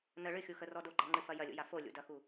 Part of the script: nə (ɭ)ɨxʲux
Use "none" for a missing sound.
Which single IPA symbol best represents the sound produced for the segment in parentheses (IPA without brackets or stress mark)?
ɭ